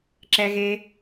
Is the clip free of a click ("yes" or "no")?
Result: no